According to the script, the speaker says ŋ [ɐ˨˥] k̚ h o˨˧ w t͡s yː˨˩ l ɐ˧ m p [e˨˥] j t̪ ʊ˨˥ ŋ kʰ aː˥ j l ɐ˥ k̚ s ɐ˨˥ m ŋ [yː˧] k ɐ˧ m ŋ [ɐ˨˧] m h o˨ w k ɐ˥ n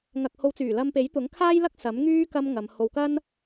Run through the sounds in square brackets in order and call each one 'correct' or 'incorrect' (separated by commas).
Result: incorrect, correct, incorrect, correct